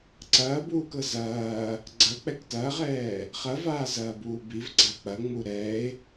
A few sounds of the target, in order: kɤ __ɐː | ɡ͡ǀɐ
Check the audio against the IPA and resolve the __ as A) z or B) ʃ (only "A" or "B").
A